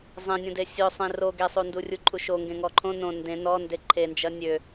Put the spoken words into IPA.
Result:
zˤẽnʲõde sʲʊ sˤẽro ɡesˤu ndurʲuǃʼuʃo ŋɡẽŋɔǃʰõ nõ ndẽ nɔnde ǃʰend͡ʒɐ nʲø

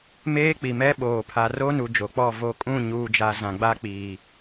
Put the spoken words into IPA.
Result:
meː˦k͡pi˨mɛ˦ ɓoː˨ pʰa˨ro˦nu˨ d͡ʒo˨k͡pɔ˦˨vo˦˨ kʼũ˦˨ɲuː˨d͡ʒa˨ zã˨ɡ͡ba˦ k͡piː˨

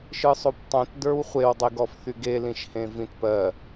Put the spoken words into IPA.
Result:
ʃɯsˤoptˤõt də˞wχʷew dˤiɡɔfθyɡe lĩʃhẽvĩtpɜ

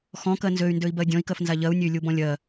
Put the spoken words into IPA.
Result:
xɔ̃kɜ nzøy̯ndøi̯bɜ dʲɔ̃i̯kɜfnza ʎɜu̯nʲøy̯lʲubɔ̃ lʲɜ

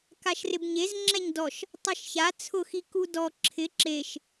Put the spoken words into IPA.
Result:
kaʃrɪbɲez ŋ͡ǁɛɲdɔʃ | tˤɛʃça t͡sʰʊxi kudɔ ǁʰɪ ǁeʃ

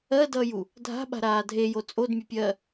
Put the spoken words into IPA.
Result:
ɜdʌːju | dʱa̤ɓa̤ɾaː dʱejo t͡sʼodmʲɘpʲɜː

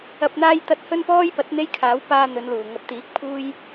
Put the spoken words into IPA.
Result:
ɐ˨p̚n̪aː˧jt̪ɐ˨˥t̚ hɵ˥npɔː˥jpɐ˨˥t̚ n̪e˥jkʰaː˨˥w paː˧ n̪ɵ˨˧nluː˨˩ ŋɐ˨˥p̚t̪iː˨˥k̚pʰuː˥j

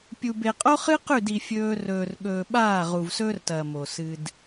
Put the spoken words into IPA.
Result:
pʲu˨be˨qʼo˦χɨ˦ qʉ˦˨di˨ fʲɵː˦ rɵː˨rɠɵː˨ ɓaː˦˨ʁu˨vsɵː˦rtɐː˨ mo˨sɨ˦d

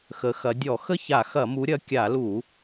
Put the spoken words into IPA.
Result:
xə˨˦xɐ˨˦ dʲɔ˧˩˧xə˥˨ça˧˩˧ xɐ˧˩˧mu˨˦ɾʲɐ˨˦ kʲa˧˩˧lu˧˩˧

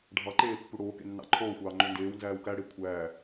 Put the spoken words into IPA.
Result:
ɖʱɑǃeː pːuɽoːkḛ nːɑ̰ǃʰoːxʷɑː ŋ͡ǃøndeːwnzæːw kæɽe kʷʰæː

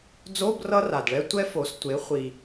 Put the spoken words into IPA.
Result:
d͡zo˧˥˧b rʌ˥ra˨˩dɭɛ˥ tʷɛ˥fo˩˧s tʷe˩˥χʷi˨˩

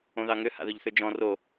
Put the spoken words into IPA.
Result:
õðɑŋʏ ha̰ðɵʎθʏd͡ʒɔ̃ ro

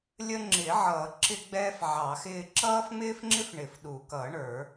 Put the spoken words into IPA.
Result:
lʲə˦ŋ͡ǁɪː˨˩˦ʕʌː˨˩˦ ǁɪ˦ɡ͡bɛː˦f ʕɑ˨˩˦xɪː˦ ǁʌː˦fŋ͡mɪː˦fŋ͡ǁɪ˦f ɳɪ˨˩˦fɗu˨˩˦kʌː˨˩˦ ɳə˞˨˩˦

